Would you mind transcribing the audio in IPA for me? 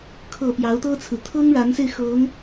kʰ ɤ˨˩ p j ɑ˧˥ ʊ̯ t̪ ɤ˥ t͡sʰ ɹ̩˨ t̪ʰ ɤ˥ ŋ ɻ a˧˥ n s e˧ ɪ̯ x ɤ˧˥ ŋ

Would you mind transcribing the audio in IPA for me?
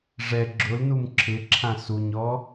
ʐ ɛ ɡ͡ǁ ʊ l n u m ǁʰ ɪ ǁʰ ã s u ɲ ɔ

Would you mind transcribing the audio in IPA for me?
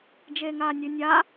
d͡ʒ eː ŋ aː nʲ ʉ nʲ a

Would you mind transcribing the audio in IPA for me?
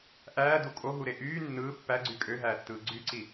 ʔ æː d u kʼ o ɦ u ɾ e ʔ yː nː ɯː pː æ ɡ͡ǀ y kʼ ø ɦ æː tː ɯː ɡ͡ǀ y ǀ i

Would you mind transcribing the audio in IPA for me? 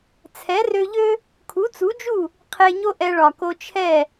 t͡sʰ ɛ˩˥ r ø˧ ʎ ø˥ | kʰ u˩˥ t͡s u˩˥ d͡ʒ u˥˩ | qʰ e˧ ɲ o˥ ʔ ɛ˧ ɭ ɒ˩ k o˧ t͡ʃʰ ɛ˥˩

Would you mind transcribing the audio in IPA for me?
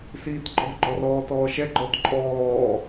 s iː t ǃʼ ɔ̤ ɡ͡ǃ ɔ r ɔː t ɔː ʃ ɛ ɡ͡ǃ ɔ t ǃʼ ɔː

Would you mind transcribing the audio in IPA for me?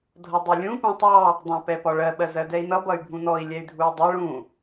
dʱ ʌ dˤ i lʲ ũ p ũ tˤ ɑ | dˤ ɑ̃ p ɛ p ɒ ɭ ɜ ɓ ɜ z ɜ d ɛ i̯ n̪ ʌ b ʌ y̯ bʱ ũ n̪ ɔ i̯ lʲ ɛ y̯ dʱ u i̯ dˤ ʌ ɭ ũ

